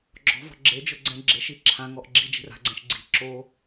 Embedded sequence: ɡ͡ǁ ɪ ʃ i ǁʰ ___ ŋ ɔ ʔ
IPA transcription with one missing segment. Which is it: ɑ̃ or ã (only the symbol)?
ã